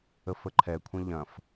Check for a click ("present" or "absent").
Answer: present